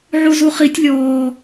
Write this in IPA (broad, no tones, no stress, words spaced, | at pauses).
ʕuzuχitʲ lʲɔː